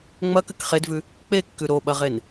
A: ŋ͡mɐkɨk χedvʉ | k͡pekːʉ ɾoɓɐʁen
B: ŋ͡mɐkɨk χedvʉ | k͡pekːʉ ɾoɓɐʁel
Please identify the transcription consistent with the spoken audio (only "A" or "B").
A